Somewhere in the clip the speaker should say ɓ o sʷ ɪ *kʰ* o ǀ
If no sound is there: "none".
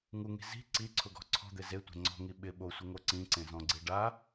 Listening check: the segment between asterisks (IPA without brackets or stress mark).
ŋ